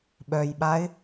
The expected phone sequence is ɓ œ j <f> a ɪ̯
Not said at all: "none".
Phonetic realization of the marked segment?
ɓ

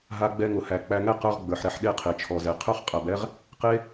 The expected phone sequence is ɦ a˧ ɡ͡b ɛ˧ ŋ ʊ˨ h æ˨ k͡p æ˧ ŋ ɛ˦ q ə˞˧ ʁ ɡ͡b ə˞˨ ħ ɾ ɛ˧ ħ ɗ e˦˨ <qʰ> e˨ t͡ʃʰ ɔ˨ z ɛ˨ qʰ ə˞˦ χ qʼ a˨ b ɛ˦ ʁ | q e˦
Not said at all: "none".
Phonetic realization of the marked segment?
qʰ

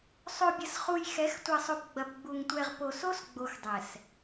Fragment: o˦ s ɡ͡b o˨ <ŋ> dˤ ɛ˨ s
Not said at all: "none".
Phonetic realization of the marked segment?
x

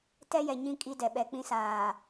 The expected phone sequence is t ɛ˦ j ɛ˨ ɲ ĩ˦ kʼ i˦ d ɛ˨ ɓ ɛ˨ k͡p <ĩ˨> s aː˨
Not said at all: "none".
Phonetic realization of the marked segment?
ĩ˦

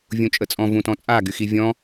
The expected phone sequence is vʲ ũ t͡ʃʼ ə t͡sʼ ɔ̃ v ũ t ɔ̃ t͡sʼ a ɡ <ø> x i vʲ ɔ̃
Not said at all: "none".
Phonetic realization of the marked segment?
y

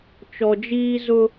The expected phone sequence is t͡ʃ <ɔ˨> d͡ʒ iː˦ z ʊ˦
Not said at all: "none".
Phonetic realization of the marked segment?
ɔ˨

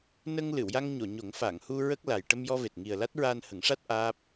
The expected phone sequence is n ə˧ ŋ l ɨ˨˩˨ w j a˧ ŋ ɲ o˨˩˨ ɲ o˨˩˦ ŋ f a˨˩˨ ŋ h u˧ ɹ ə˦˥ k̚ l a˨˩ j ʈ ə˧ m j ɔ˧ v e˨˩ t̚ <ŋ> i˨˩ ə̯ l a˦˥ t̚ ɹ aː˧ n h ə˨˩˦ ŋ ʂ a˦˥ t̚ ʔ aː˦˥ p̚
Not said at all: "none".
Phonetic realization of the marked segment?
ŋ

